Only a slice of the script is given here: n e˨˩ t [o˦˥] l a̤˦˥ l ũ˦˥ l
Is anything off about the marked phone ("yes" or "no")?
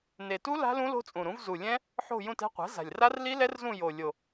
yes